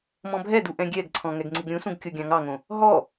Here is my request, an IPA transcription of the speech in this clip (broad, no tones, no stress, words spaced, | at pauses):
mɔ̃bʱɛdu ʔɛ̃ɡʲɛɡǀʰɔ̃ ŋɛɡŋ͡ǀiɡɾʲũsũɡ kʲoɡʲɑ̃ŋɑŋõ | ɦɔ